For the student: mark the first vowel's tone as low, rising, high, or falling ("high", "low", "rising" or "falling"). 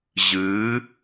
rising